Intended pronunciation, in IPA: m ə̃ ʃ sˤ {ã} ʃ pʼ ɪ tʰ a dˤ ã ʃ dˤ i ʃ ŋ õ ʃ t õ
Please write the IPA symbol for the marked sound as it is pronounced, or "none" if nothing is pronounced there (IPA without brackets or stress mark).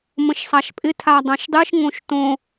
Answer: a